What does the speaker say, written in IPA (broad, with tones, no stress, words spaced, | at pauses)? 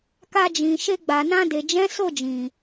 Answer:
ka˧d͡ʒĩ˨ ʃe˧ɡ͡ba˨nã˧de˨ d͡ʒɛ̃˨˦ so˦˨d͡ʒĩ˨